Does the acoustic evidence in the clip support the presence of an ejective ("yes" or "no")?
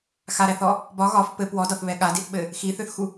no